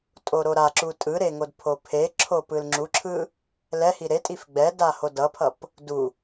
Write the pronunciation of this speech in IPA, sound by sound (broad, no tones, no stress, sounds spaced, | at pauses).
tʼ o ɾ o ɾ a ǁ u tʼ ɯ ɾ e ŋ o d pʰ o pʰ e ǁʰ o p ɯ l ŋ͡ǁ u ǁʰ ɯ | l ɛ h i ɾ e tʼ i f ɡ͡b ɛ d a h o d ʌ pʰ ʌ p | d u